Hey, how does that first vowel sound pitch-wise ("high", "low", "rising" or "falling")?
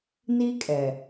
high